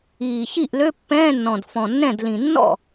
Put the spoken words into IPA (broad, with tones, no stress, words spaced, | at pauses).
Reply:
iː˨˩çi˥˩ʔlø˧˥˧ pːɛ̃ː˧˥˧nːɔ̃˨˩d fɔ̃˨˩nːɛ̃˥˩dlĩ˨˩ nːɔ̰˥˩